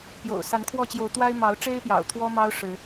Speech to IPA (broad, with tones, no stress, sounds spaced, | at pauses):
p j o̰˨˩ ʊ̯ s a˨˦ n kʰ w ɔ˥˨ t͡ɕ j o˨˦ ʊ̯ t̪ w a˦ ɪ̯ m ɑ˨˦ ʊ̯ ʈ͡ʂ e˦ ɪ̯ p j ɑ̰˨˩ ʊ̯ t̪ʰ w ɔ˦ m ɑ˦ ʊ̯ ʂ ɻ̩˨˦